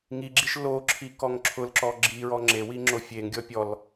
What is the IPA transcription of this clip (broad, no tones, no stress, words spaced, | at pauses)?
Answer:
ŋiɡ͡ǁiʃ lo ǁʰikɔŋǁʰʊlǁɔ ɡ͡ǁiɹɔ ŋ͡ǁewi ŋ͡ǁofʲeŋɡʲɔ pʲɔl